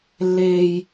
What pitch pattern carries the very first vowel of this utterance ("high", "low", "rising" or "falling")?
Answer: low